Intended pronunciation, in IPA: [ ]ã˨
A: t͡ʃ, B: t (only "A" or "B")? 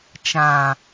A